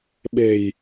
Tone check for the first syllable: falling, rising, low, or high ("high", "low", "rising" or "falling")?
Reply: low